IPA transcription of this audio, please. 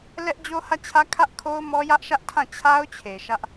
l ɛ˦ ʔ d͡ʑ o˦ h ä˦˨ t͡ɕʰ ä˦ kʰ ä˦ ʔ kʰ o˦ ʊ̯ m ɔ˦ j ä˦ ʔ ʃ ä˦ ʔ tʰ ã˦˨ t͡ɕʰ a˦ ʊ̯ t͡ɕʰ e˨ ʃ ä˦ ʔ

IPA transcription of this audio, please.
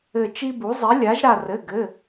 ɘ˧˩ t͡ʃ i˦ b u˩˥ zˤ i˩˥ lʲ a˩˥ ʒ ɾ a˧˩ r ɘ˩˧˩ ɡ ɘ˩˧˩

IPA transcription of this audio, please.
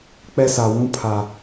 k͡p ɛ˦ s a˨ w ũ˦ pʰ a˨

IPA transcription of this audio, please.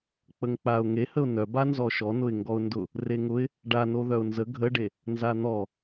k͡p ə ŋ k͡p a ʊ̯ ŋ e h ə ʊ̯ n œ b a n z ɔ ʃ ɔ n ʊ ɪ̯ ŋ ɡ ɔ ʊ̯ n d ʊ | r e ŋ ʊ ɪ̯ | ɖ a n o ð œ ʊ̯ n z ə ɡʱ ə ɖ e | n z a n̪ ɔ

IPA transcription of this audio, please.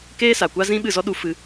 k eː˦ s a˨ kʷ a˦ z ĩ˦ ɓ ɨ˦˨ z ɔ˦ ɗ u˧ f ɨ˧

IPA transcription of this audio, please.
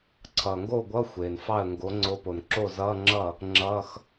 ǀʰ ʌː˩ ŋ ɡ oː˥˩ ɡʷ ʌː˧˥˧ xʷ eː˩ n f ɑ˥˩ ə̯ ŋ ɡ o˨˥ ŋ͡ǀ o˨˥ p o˩ n ǁ o˥˩ z ʌː˧˥˧ ŋ͡ǁ ʌ˥˩ | ŋ͡ǁ ʌː˧˥˧ x

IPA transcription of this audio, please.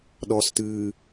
ɗ ɔ s t ɨː

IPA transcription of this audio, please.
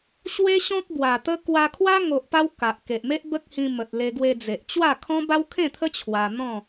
ɕ w e˦ ɕ ɔ̃˦ k̚ b w a˨˩ t̪ ə˦ k w a˧ kʰ w a˦ ŋ o˨ ʔ p a˧ w k a˨ ʔ k e˨ ʔ m e˦ ʔ b ə˦ k̚ h ĩ˧ m ə˨ t̚ l e˧ ɡ w e˧ d͡z e˨ ʔ t͡ɕ w a˥˧ kʰ ɔ̃˦ b a˦ w kʰ ẽ˥˧ t̪ʰ ə˦ t͡ɕʰ w a˧ n̪ ɔ̃˥˧

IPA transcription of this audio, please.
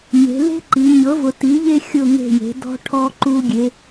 ɲ e̤˩˧ l e̤˥ ǃ i˩˧ ɲ ɤ˩˥ v ʊ˩˧ t i˩˥ ʎ e˥ xʲ ʊ˥˨ ŋ e̤˥˨ j e̤˩˥ d ɔ̤˥ ʈʰ ɔ˥ ǃ u˥ ɡʲ e˧˥

